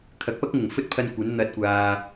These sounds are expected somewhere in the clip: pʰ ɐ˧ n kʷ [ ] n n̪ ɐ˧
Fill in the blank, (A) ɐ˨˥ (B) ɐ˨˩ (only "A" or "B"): A